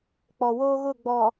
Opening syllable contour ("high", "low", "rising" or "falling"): low